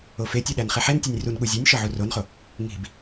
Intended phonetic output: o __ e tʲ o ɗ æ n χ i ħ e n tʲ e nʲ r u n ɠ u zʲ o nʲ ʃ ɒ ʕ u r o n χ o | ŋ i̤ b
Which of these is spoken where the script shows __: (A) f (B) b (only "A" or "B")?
A